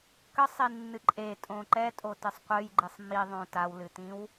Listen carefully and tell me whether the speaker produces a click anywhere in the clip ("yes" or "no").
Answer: yes